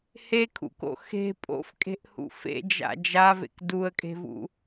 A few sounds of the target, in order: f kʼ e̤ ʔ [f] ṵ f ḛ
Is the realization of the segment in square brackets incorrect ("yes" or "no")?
yes